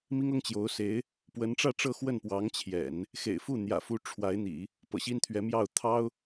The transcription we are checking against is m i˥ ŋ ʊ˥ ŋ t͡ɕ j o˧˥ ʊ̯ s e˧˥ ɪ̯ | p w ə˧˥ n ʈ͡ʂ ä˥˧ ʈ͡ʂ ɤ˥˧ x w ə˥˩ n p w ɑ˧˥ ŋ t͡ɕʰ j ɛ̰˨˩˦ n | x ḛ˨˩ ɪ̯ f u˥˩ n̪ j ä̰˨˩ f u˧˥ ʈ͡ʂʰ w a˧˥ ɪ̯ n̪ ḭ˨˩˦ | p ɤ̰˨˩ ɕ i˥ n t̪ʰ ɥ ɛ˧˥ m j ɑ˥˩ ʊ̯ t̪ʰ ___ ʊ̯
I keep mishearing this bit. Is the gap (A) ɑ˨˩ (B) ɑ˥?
B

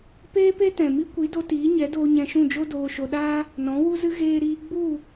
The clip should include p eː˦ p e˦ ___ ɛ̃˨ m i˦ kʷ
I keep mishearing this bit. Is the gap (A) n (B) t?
B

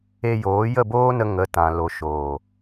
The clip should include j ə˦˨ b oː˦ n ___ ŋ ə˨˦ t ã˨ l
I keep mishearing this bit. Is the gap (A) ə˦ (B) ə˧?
B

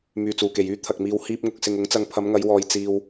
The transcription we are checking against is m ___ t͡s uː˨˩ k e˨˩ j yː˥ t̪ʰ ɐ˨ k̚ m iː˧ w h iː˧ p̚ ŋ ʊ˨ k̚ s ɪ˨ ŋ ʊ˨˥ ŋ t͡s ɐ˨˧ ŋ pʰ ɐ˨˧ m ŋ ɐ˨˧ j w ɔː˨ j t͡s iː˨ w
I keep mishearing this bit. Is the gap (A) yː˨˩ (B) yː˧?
A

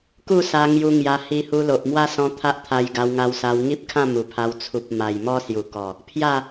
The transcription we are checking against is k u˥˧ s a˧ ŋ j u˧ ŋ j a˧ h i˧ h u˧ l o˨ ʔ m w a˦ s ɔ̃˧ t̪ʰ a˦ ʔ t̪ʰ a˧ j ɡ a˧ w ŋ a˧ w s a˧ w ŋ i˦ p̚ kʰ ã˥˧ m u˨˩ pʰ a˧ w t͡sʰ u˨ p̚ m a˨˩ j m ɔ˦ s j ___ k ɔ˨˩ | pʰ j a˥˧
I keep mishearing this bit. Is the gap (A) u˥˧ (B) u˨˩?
B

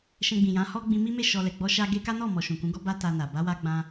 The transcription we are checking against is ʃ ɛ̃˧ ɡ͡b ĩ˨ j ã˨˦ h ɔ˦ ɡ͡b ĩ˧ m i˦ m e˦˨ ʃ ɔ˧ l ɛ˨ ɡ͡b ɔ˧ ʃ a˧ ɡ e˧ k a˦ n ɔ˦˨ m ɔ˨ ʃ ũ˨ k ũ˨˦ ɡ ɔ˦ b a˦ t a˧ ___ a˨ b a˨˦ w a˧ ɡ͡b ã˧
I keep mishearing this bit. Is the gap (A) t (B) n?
B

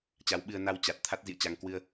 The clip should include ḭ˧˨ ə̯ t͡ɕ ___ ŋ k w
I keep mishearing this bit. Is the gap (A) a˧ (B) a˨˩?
A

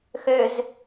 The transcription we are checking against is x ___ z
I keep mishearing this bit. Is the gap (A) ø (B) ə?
A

